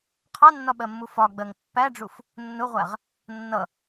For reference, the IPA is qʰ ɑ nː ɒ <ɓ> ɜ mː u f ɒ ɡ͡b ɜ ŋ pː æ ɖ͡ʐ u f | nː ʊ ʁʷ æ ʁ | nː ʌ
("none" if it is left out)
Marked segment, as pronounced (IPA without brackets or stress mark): ɓ